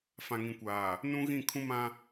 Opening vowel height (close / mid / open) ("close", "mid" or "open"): open